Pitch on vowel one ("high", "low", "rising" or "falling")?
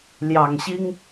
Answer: low